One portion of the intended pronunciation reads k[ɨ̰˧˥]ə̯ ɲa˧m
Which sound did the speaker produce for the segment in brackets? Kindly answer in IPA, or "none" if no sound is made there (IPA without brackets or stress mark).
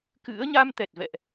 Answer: ɨ̰˧˥